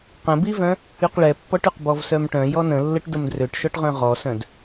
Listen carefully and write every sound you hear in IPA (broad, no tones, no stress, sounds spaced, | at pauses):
q ə̃ b i v œ̃ | y q ɭ ɛ pː ɔ ʈ y q b ɔ v s œ m ʈ œ̃ j ɔ n ə̃ lː ə ʈ d ə m d r ø ʈ ʃ ɔ ʈ ʁ œ̃ ʁ ɔ s œ̃ d